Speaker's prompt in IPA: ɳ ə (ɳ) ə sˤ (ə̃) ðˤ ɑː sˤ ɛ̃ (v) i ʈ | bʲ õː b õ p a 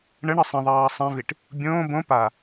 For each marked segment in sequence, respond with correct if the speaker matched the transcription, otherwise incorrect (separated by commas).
correct, correct, correct